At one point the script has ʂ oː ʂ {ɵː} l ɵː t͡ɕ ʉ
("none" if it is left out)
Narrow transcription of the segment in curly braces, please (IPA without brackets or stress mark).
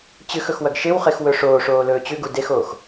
oː